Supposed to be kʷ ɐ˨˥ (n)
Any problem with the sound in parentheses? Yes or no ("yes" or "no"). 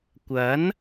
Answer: no